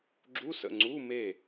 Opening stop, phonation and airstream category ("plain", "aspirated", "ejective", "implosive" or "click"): click